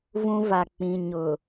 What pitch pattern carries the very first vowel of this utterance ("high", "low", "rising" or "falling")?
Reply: high